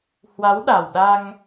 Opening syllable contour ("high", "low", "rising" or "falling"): rising